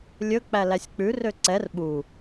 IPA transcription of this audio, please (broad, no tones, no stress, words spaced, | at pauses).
lʲɵ k͡pælæsʲk͡pʉ røǀɛr ɓu